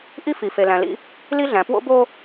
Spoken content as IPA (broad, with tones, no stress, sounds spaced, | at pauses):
ʔ i˦ f i˨ f e˨ l æ̃˨ l ḭ˦ | l i˦ ɮ æ̃˨ p w o̰˦ b o˦